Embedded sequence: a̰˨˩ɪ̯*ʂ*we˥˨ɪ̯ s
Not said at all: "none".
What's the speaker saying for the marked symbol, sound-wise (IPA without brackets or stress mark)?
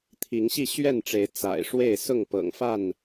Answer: ʂ